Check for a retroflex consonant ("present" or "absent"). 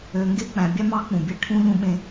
present